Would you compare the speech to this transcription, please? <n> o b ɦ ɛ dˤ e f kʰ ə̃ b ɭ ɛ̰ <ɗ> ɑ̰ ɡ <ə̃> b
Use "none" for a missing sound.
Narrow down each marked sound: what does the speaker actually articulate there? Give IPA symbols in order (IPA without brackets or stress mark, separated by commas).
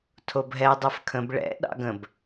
tʰ, ɗ, ə̃